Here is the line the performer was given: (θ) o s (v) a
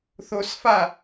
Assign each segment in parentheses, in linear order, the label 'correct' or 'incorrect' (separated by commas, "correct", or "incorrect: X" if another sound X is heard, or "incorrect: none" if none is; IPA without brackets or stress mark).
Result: correct, incorrect: f